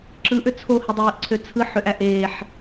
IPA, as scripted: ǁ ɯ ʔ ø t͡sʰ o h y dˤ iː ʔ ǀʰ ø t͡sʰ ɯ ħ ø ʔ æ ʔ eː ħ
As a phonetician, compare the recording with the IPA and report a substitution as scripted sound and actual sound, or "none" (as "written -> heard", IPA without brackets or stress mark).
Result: none